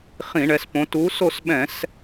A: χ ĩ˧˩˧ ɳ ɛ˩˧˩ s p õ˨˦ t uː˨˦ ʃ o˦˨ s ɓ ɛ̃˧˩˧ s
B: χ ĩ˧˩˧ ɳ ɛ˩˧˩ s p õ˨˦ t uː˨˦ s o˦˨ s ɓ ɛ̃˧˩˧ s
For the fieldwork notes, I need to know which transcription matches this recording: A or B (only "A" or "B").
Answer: B